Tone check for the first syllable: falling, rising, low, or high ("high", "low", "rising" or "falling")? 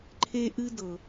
high